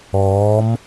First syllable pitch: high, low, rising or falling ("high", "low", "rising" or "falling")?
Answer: rising